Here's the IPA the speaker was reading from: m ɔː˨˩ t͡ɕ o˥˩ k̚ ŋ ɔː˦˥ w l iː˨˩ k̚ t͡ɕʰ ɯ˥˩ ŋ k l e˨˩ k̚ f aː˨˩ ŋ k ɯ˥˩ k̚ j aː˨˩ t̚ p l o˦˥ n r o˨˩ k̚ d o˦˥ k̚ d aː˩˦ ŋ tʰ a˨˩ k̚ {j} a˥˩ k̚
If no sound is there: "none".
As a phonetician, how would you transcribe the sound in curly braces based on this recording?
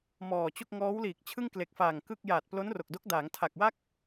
w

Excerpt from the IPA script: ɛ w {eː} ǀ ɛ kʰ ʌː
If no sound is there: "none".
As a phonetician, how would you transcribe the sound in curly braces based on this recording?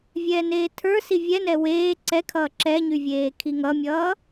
eː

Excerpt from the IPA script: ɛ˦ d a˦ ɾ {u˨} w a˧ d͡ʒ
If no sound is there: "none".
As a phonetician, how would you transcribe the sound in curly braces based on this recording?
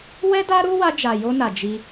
u˦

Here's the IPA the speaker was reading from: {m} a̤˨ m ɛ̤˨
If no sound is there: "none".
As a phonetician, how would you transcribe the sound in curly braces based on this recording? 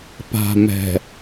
p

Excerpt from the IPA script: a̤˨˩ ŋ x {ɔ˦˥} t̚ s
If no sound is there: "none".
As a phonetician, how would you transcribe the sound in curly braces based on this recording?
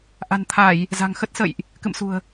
ə˦˥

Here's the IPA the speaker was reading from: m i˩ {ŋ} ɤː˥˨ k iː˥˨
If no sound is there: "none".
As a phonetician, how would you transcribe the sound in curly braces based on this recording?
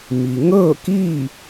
ŋ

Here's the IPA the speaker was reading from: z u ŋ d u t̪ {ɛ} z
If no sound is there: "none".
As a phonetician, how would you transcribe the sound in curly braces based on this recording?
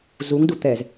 ɛ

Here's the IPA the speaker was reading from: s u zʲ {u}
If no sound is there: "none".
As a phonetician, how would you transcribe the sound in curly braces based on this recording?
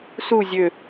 ø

